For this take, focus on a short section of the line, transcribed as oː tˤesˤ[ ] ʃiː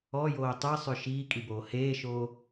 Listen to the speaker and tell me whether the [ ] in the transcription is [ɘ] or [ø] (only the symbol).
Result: ø